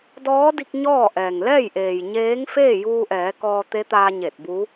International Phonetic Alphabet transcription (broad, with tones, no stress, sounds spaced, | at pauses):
d ɔː˧˥ d i˧ k̚ ɲ ɔː˥˨ ʔ ɛː˩ ŋ l ɛː˥˨ j ʔ eː˩ j ɲ eː˧˥ ŋ f eː˥˨ j uː˧ ʔ ɛː˩˧ k ɔː˧ t̪ e˧˥ t̪ aː˧ ɲ e˧˩ t̚ b u˧˥